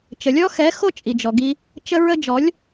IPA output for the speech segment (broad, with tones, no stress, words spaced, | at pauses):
t͡ʃə˨lʲɔ˦xɛ˨˦xo˦ t͡ʃʼi˨d͡ʒɔ˨ɡi˦ | t͡ʃə˦ɹə˦ d͡ʒɔ˨˦lʲ